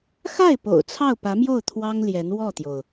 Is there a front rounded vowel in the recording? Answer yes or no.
no